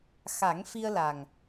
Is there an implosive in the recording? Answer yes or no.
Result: no